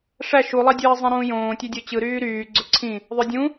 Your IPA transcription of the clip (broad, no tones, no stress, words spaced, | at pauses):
ʂæ ʃulˠɑdʲɯːzˤĩ ɾũːjõːtʲødʲo t͡ɕɯɾyː ɾyː ɡ͡ǀøǀʰĩ | ðˤødʲũ